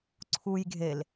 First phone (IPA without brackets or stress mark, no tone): ǀʰ